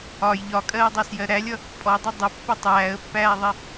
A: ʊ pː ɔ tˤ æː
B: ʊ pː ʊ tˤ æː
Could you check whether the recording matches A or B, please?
B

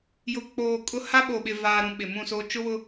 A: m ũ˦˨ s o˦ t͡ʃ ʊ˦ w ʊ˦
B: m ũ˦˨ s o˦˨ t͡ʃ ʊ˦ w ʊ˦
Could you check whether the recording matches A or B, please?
A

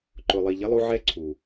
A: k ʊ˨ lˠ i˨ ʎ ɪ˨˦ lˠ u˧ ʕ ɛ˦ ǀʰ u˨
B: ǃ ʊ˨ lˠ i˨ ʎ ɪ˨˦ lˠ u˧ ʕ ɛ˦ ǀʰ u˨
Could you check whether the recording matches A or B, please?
B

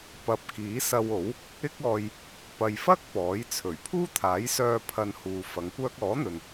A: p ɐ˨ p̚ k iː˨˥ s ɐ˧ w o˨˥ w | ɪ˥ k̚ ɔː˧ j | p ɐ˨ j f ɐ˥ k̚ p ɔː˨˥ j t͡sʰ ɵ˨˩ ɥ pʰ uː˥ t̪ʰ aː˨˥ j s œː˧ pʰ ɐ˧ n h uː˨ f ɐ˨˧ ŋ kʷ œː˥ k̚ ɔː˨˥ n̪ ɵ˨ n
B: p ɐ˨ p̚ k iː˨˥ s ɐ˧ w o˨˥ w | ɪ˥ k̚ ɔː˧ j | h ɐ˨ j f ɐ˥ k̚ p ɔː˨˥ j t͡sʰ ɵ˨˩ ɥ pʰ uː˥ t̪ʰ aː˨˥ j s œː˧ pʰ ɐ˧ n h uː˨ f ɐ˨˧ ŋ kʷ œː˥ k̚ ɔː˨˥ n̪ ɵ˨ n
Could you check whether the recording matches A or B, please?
A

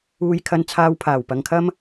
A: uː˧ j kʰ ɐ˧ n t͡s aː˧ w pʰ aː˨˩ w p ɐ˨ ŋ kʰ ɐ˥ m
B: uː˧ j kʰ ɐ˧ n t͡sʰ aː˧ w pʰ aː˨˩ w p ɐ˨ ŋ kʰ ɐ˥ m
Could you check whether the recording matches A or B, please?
B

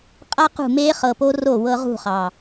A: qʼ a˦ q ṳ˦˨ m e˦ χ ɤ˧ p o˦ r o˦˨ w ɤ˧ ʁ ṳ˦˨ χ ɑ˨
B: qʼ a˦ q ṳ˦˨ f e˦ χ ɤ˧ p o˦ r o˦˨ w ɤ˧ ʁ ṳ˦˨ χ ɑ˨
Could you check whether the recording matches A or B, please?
A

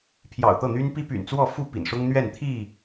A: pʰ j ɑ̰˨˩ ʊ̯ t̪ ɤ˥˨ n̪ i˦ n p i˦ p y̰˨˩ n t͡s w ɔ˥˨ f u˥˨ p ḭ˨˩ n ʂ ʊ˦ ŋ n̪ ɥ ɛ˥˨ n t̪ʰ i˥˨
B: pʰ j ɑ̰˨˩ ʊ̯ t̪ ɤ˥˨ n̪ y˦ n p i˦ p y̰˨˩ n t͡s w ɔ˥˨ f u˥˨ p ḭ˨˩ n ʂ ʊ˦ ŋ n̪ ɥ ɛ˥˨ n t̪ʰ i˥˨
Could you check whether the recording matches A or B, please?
B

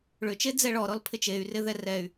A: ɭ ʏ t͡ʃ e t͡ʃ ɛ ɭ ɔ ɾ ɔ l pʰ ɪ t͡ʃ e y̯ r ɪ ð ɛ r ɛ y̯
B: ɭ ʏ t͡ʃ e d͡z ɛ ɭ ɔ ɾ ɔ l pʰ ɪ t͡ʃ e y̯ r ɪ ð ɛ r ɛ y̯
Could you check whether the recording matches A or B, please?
B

